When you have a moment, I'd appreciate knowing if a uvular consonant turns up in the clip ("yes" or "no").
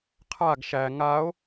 yes